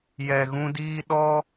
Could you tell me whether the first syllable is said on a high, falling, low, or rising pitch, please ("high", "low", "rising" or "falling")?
low